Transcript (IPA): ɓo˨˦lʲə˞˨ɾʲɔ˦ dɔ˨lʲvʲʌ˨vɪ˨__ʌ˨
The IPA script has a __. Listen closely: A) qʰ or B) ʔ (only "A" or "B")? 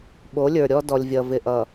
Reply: B